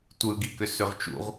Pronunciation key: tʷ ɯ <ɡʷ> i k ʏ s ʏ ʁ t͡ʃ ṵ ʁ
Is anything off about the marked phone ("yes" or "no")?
yes